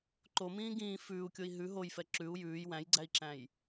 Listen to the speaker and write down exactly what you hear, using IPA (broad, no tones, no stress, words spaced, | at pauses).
ǃomĩː ɡĩː fʉːu̯kʲoi̯ ɦʉ ɦojfɛ ǁʉu̯ jʉːj wæ̃jɡ͡ǀæi̯ǁæ̃j